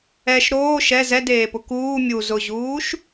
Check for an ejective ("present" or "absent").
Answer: absent